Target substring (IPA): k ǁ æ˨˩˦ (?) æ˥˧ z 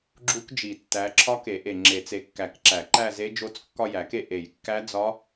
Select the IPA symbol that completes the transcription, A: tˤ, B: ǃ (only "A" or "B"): B